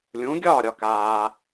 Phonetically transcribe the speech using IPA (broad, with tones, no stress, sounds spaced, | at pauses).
lʲ ũ˩˥ ɡʲ ɒː˥˩ ɾʲ ɒ˩ k aː˩